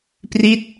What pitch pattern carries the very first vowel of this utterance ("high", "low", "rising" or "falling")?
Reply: falling